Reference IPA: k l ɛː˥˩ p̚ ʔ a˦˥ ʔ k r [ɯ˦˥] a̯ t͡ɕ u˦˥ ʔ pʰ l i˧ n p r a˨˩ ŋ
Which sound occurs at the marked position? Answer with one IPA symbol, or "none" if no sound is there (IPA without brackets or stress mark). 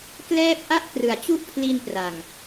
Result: ɯ˩˦